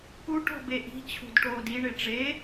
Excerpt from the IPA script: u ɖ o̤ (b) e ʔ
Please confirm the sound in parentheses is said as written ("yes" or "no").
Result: yes